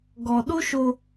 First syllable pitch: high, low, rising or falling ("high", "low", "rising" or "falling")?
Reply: low